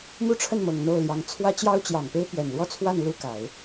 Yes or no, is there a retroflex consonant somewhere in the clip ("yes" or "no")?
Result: yes